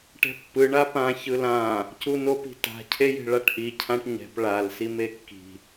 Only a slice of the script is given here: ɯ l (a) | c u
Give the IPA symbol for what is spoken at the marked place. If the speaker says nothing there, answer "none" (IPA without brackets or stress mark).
ã